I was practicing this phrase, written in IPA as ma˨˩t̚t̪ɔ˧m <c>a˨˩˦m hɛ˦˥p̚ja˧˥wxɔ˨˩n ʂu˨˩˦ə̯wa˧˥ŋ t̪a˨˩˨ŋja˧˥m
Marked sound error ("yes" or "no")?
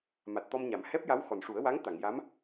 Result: yes